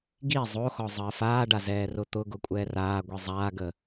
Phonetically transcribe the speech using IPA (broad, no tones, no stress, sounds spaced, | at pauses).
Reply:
ɡ i zˤ o x ɔ zˤ əː f aː ɖ a z ɛː r ʊ t̪ ʊ ɡ ʊ kʷʼ ɛː r aː ɡʷ i zˤ aː ɡ əː